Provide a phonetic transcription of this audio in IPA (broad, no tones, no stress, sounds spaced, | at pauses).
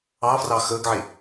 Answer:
ɑ f r ɑ x əː ɡ ʕ e